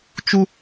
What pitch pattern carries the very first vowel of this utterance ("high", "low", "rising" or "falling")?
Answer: high